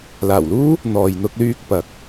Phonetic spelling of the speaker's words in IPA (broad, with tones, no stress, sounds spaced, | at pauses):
l aː˨˩ w l uː˥ | n̪ ɔː˨ j n̪ ʊ˧ k̚ l yː˧ k̚ p ɐ˨˥ k̚